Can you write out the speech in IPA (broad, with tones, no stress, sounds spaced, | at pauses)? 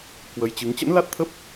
k w ə˨˦ j t͡ɕ ɨ˨˦ ŋ t͡ɕ ə̰˧˥ n l a˦˥ t̚ t̪ʰ ə˦˥ p̚